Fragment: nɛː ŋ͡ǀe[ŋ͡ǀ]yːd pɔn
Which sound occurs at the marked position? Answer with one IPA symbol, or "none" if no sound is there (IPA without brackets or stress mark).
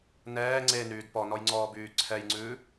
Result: n